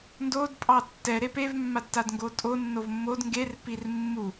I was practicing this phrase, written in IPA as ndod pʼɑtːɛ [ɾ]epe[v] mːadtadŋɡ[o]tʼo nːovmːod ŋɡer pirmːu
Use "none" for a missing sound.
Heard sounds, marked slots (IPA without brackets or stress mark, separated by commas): ɾ, v, o